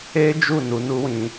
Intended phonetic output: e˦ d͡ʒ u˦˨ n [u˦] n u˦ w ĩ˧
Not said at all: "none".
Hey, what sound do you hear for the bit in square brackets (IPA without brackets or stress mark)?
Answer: u˨˦